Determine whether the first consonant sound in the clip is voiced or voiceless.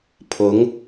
voiceless